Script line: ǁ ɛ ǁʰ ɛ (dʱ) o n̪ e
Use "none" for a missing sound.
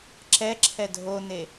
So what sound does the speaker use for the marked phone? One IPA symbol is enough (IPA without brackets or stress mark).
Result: dʱ